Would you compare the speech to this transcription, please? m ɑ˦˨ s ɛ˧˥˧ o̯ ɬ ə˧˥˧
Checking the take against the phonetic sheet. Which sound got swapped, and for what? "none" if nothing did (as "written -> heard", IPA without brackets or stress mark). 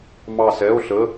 none